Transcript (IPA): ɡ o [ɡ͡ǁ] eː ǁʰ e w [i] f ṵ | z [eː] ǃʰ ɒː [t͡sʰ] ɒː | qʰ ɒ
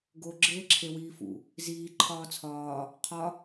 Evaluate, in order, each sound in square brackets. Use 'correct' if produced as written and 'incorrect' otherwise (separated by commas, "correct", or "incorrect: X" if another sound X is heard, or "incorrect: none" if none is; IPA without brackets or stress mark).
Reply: correct, incorrect: iː, incorrect: iː, correct